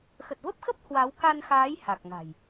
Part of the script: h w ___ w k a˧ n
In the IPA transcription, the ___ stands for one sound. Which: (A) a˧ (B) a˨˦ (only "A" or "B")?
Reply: B